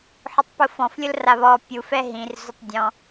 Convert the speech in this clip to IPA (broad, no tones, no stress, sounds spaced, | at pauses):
ħ ʊ tˤ p ʊ f ɔ̃ f lʲ ʊ l r a β ɔ pʲ u f ɛ ɦ ĩ r z ʊ tˤ dʲ ɔ̃